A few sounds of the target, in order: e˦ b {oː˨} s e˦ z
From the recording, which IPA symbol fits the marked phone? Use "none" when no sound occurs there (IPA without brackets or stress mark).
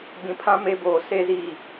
oː˨